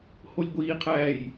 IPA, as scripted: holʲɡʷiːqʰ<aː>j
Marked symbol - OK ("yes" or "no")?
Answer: no